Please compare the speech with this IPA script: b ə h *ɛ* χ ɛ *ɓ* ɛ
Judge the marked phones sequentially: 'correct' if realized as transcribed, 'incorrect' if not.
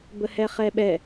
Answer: correct, correct

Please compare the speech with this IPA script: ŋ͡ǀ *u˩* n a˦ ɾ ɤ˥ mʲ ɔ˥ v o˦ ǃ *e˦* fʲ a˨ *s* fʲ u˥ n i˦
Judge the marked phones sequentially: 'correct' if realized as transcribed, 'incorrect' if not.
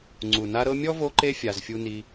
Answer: correct, correct, incorrect

